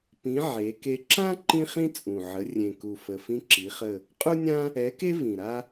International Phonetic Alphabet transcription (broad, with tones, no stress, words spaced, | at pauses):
pĩ˨˥ ʕe˨˥ke˥ ǁã˥ ǃĩ˥χĩ˥ t͡sʼũ˨˩ʕə˨˥ rʲẽ˨˩ku˨˩fə˨˩ fĩ˥ǁi˨˥χə˥˧ | qʼu˥nʲã˥ | ɛ˨˥ke˥ vĩ˨˩ɾa˥